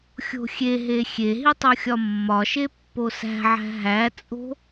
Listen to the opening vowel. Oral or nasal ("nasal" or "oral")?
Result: oral